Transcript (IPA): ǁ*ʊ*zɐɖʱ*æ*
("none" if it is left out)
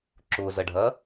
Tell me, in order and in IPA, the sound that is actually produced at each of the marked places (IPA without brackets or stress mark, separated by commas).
ʊ, ɐ